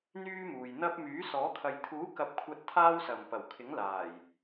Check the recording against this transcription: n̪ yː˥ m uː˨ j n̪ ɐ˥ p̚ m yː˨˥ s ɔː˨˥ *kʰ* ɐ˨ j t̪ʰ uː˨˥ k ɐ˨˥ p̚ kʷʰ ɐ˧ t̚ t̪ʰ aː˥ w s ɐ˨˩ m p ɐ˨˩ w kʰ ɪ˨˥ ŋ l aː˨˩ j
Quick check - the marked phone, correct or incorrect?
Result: correct